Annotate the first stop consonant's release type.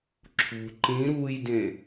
click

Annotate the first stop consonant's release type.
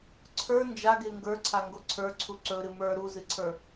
click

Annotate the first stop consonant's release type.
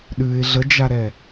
implosive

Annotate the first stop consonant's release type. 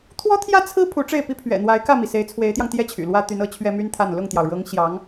aspirated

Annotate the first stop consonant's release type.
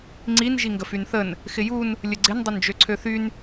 click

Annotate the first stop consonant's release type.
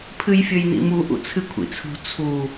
aspirated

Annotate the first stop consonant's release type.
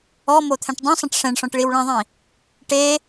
aspirated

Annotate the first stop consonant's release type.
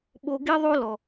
implosive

